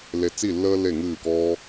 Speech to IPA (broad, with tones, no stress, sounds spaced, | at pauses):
l e˧ t͡s i˦˨ lː əː˦ l e˦˨ ŋ ɨː˦˨ k ɔː˦